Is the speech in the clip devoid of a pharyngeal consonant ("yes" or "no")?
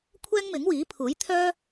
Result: yes